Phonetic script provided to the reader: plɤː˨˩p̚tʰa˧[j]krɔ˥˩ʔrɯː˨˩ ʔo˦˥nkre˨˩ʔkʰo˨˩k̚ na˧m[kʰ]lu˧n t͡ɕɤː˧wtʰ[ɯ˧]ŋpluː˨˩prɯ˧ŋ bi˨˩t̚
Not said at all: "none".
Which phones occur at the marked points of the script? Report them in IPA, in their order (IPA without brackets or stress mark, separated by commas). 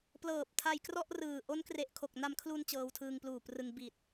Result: j, kʰ, ɯː˧